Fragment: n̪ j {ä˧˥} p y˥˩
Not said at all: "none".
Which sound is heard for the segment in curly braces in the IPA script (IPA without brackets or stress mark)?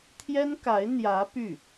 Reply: ä˧˥